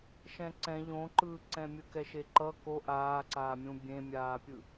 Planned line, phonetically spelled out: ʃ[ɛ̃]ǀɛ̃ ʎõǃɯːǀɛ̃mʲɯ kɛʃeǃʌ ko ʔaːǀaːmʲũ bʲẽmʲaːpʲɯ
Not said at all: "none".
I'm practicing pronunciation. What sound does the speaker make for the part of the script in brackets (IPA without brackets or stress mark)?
ɛ̃